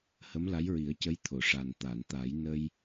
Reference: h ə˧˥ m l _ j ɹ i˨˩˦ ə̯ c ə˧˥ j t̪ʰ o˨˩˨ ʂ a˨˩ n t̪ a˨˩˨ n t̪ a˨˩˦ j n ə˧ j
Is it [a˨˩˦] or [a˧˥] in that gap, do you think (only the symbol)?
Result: a˧˥